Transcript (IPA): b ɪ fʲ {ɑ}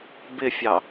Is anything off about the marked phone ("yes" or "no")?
no